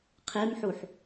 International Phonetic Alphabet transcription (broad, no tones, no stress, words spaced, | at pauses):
qʰemħuħ